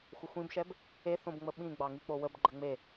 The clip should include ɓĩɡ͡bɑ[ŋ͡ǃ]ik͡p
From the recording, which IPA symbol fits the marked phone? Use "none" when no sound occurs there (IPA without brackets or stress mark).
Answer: ŋ